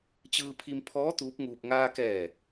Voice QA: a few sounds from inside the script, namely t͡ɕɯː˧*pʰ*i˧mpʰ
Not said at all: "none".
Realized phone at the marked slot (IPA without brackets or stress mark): pʰ